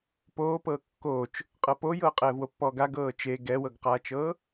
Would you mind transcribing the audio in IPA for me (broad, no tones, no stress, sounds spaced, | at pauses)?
p oː p ɤː kː oː t͡ʃ | qʼ ɤ p o j ɤː qʼ ɛː v w o pː ɔː ɡ a ɡ ɤː t͡ʃ e ɡ ɛ w ɤ ɡ q aː t͡ʃ ɤː